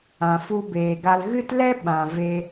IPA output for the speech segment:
ã˨ f u˧ b eː˨ ɡ a˧ l ɣ ɨ˦ t l ɛ˦ ɓ ã˨ v e˧

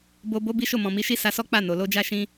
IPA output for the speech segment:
b o˧ b o˦ b i˦ ʃ o˦˨ m ɔ̃˨ m i˨˦ ʃ i˦ s a˧ s ɔ˦ k͡p a˦˨ n o˨ l o˧ d͡ʒ a˦ ʃ ĩ˦

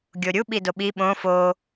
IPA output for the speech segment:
ɡʲ o ɾʲ u ɓ i d o ɓ i ɓ õ f o

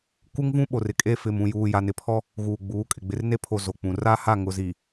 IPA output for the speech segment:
k u˦ ŋ v ũ˦ ɓ o˨ r ɪ˨ kʼ e˦ f ɪ˨ m ũ˨ j uː˨ j a˨ n ɪ˨ pʰ ɔ˦ | ɣ uː˨ ɡ͡b uː˨˦ kʼ ɪ˨ ɡ͡b ɪ˨ r n e˦ pʰ o˨ z o˨ k͡p ũ˨ r a˦ h a˦˨ ŋ ʊ˨ z iː˨

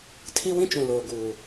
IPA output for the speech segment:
tʰ i˦ w ĩ˦ t͡ʃ ũ˨ l oː˨ ɡ uː˨

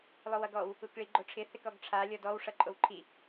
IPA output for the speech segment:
lˠ o w ʌ ɡ ɔ w | u k ɭ i ɡ͡ǃ o ʈ͡ʂʰ ɪ θ ɪ k ɔ ɡ ʈ͡ʂʰ a lʲ ɔ d ɔ w ʂ ʌ ǃʼ o w ǃʰ i

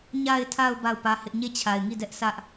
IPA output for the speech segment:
ɲ a˨ ɪ̯ tʰ a˨ ʊ̯ b a˦˨ ʊ̯ p ä˦ h ɪ˦ ʔ ɲ e˦˨ t͡ɕʰ a˨ ɪ̯ ŋ i˦˨ d ɛ˦ ʔ s ä˦ ʔ

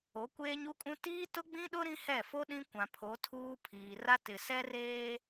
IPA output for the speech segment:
o˨˦ kʷ eː˦ ɲ u˦ kʼ ũ˦ t iː˦ t ʊ˦ ɡ͡b ĩ˦ ɗ ʊ˦ ɾ ĩ˦ h ɛ˦˨ f o˦ ɗ ĩ˦ kʷ ã˨ pʰ o˨˦ tʰ uː˦ pʰ iː˨ r a˦ t ɪ˨ s ɛ˦ r eː˦

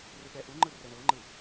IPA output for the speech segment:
r ɯ ɠ ɛ ʔ u ŋ͡ǃ ɯ r ɛ ɳ ɤ ŋ͡ǃ ɯ

